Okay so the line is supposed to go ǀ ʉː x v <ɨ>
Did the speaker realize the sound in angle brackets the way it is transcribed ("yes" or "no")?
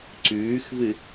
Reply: yes